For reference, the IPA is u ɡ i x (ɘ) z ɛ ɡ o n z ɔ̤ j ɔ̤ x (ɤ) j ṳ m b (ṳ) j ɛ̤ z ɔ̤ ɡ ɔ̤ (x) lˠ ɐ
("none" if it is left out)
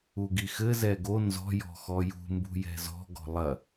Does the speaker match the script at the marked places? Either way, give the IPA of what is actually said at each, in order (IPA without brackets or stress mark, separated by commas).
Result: ɘ, ɔ, ṳ, none